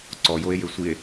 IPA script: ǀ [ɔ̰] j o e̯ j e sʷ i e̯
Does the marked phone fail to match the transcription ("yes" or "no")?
yes